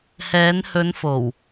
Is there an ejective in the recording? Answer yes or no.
no